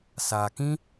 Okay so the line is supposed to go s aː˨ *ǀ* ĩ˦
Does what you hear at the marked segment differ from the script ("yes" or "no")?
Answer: yes